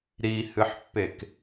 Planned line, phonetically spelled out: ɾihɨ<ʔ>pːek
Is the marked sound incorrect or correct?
incorrect